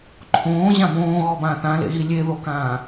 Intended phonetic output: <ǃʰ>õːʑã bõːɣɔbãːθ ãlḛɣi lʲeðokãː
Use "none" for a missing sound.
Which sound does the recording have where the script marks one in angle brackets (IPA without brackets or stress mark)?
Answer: ǃʰ